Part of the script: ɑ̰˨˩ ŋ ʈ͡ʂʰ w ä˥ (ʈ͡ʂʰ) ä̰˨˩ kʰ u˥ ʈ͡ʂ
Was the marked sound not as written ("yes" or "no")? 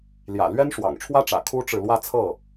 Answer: yes